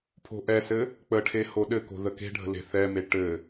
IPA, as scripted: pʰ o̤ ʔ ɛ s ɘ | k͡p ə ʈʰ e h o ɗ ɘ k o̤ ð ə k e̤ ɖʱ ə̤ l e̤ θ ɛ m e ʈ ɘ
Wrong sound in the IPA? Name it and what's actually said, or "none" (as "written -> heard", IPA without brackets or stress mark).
none